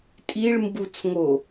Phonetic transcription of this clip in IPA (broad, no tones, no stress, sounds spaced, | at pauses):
tʼ i ɭ m b u t͡s ŋ o